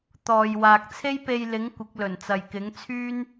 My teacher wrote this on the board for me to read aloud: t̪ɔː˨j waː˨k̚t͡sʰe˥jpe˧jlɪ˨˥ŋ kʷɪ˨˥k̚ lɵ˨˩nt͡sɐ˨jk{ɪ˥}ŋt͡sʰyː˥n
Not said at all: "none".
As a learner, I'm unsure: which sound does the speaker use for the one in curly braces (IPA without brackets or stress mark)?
ɪ˨˥